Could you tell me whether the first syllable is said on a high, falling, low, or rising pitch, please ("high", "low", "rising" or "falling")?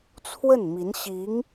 falling